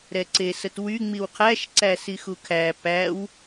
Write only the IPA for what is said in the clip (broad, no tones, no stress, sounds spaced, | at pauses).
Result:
ɾ ɛ ǀ e s ə t w y ŋ͡m i w qʰ æ ʃ ǀ æ s i x u kʰ æ p æ w